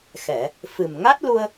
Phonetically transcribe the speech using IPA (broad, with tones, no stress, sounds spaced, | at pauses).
x ɛ˨˩˨ | f ɨ˨˩ m ŋ a˦˥ t̚ l u˧ ə̯